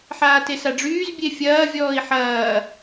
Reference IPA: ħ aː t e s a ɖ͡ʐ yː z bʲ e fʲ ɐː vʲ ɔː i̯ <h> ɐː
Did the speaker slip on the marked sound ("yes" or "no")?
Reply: yes